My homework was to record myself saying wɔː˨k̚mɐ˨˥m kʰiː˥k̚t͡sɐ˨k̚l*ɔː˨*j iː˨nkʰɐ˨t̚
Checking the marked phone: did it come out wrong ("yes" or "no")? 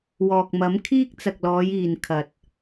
yes